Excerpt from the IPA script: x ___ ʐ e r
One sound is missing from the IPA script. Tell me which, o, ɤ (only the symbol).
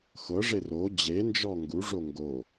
ɤ